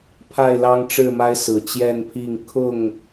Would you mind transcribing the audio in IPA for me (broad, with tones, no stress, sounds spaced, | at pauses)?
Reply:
pʰ a˥˨ ɪ̯ l ɑ˦ ŋ ʈ͡ʂ ɻ̩˥˨ m a˦ ɪ̯ s ɹ̩˨˩ t͡ɕ j ɛ˥˨ n pʰ i˥˨ ŋ kʰ ʊ˥˨ ŋ